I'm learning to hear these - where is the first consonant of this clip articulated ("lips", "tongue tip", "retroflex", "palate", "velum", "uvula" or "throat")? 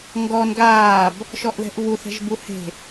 velum